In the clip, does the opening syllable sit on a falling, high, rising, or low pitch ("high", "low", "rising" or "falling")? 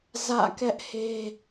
falling